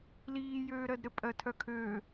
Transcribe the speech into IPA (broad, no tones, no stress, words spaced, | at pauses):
liːjøːɾɜdɾɘ pʼɜtʰœkʰø